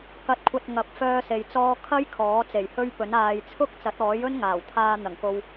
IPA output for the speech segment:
k ɐ˧ t̚ kʷʰ ɐ˧ t̚ ŋ ɐ˨˥ p̚ f œː˥ s e˧ j t͡s ɔː˥ kʰ ɐ˥ j kʰ ɔː˨˥ t͡s e˨˩ j h ɵ˥ ɥ p ɵ˨˥ n aː˨ j t͡sʰ ʊ˥ k̚ t͡s ɐ˨˥ t̚ ɔː˨˥ j ɵ˥ n ŋ aː˨˩ w t̪ʰ aː˧ n̪ ɐ˨˩ ŋ k o˨ w

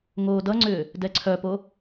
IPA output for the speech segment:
ŋ oː d ʌ ŋ͡ǀ ʏː | d ɛ ǀʰ œ p o

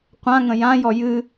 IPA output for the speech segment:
qʷ ã ŋ ə̃ j ã j ɔ j ɨ

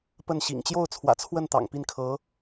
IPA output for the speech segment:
p ə˥˩ n ɕ ḭ˨˩ ŋ t͡ɕ j o˥˩ ʊ̯ t͡sʰ w ä̰˨˩ t͡sʰ w ə˥˩ n t̪ ɑ̰˨˩ ŋ p i˥˩ n kʰ ɤ˧˥

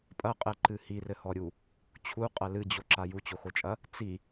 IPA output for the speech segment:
pʼ ɐ qʼ ɛ ǃ ɨ h i r ɘ h ɔ ɾʲ u | t͡ɕʰ u qʼ ɐ l ɨ d͡ʑ o ǁ a j u t͡ɕ o x o t͡ʃʼ ɐ | t͡s i

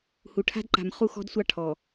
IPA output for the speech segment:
h u˨ ʈʰ a̤˦ d ǃ a̤˨ m χ u˦ x ɔ̤˦ d sʷ ɑ˦ ʈʰ ɔ˨

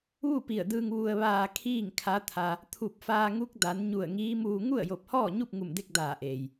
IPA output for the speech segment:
ʋ u˥˨ p i˧˩ ə̯ d ɯː˧ ŋ ʋ u˧ ə̯ ʋ aː˧ kʰ iː˥˨ ŋ kʰ a˧˥ t̪ʰ a˧ | t̪ʰ u˧˩ p̚ f aː˧ ŋ u˧˥ k̚ d a˩˧ n ɲ u˧˩ ə̯ ŋ iː˧˥ m uː˧ ŋ u˥˨ ə̯ j o˧˩ p̚ h ɔː˥˨ ɲ u˥˨ p̚ ŋ u˧˩ m d e˥˨ k̚ d aː˧˩ ʔ eː˩ j

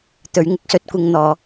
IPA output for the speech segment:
t̪ ɵ˨˥ ɥ ŋ ɪ˥ k̚ s ɵ˨˥ t̚ kʷ ɪ˧ ŋ n̪ ɔː˨˥

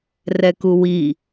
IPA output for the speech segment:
r ɛ k u w i

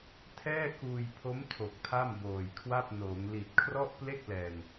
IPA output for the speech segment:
tʰ ɛː˥˩ k uː˧ j pʰ o˦˥ m tʰ o˨˩ k̚ tʰ a˥˩ m b oː˨˩ j kʰ w a˥˩ p̚ n oː˩˦ ŋ l i˨˩ t̚ kʰ r ɔ˥˩ ʔ p l e˥˩ k̚ l ɛː˨˩ ŋ

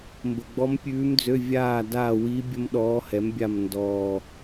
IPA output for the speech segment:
m b ə˨˩ ɡ͡b ɔ˧˥ m pʲ ʉː˧˥ m d͡z ø˧˥˧ vʲ aː˦˨ d a˦˨ w i˧˥ bʲ ə˥ m ɗ ɔː˧˥ h ɛ˩˥ m bʲ a˦˨ m n d ɔː˨˩

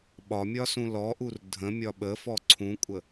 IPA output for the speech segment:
ɓ ɒ mʲ ɒ s ũ l ɔ ʔ u r dʱ ə̃ mʲ ɒ ɓ ə f ɔ ǀʰ ũ kʷʼ ə

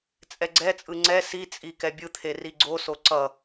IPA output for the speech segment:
t͡sʼ ɛ ɡ͡ǀ ɛ t͡sʼ ɯ ŋ͡ǀ ɛ s i t͡sʼ i k ɛ bʲ ɯ t̪ʰ e r i ɡ͡ǀ o s o ǀ ʌ

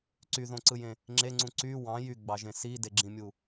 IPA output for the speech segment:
ǀ y ð õ ǀ ɯ j ẽ | ŋ͡ǁ e ŋ͡ǀ ũ ǀ y w ɑ̃ j y ɡ͡b ɑ ʒ ẽ s i d e ɡ͡ǁ ĩ mʲ u

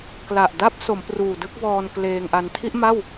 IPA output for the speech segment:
k l a˨˩ ʔ d a˥˩ p̚ s o˩˦ m p r uː˨˩ d ɯ˥˩ k̚ b ɔː˧ n k l eː˧ ŋ ʔ a˧ n tʰ i˥˩ ʔ m a˥˩ w

